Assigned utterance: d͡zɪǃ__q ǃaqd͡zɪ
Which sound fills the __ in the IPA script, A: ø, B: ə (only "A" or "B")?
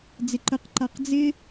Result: B